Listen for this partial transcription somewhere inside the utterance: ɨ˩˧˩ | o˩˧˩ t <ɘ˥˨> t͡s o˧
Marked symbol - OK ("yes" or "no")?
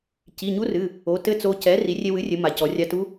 yes